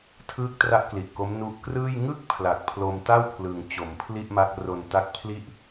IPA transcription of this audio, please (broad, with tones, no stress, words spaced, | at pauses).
tʰɯː˥˩k̚tra˥˩ʔ kli˨˩ʔko˦˥m nu˦˥ʔ krɯː˥˩j ŋɯ˥˩k̚ pʰla˨˩k̚pʰlo˧m ta˥˩wpʰlɯ˩˦ŋ t͡ɕo˩˦m pʰli˥˩ʔma˦˥k̚ ro˧n ta˦˥k̚pʰli˥˩ʔ